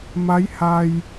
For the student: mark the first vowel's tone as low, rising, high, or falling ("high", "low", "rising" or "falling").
rising